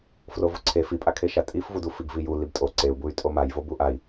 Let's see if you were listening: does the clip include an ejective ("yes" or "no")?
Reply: yes